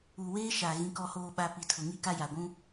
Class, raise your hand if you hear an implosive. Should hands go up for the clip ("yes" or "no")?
yes